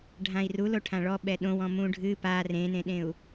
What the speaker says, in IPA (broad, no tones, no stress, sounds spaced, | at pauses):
ɖʱ ã i̯ r u l o ʈʰ ã ɭ ɔ ɓ ɛ ɗ õ w ɔ̃ m ũ ɖʱ ɨ p a r ẽ n ẽ ɗ ẽ u̯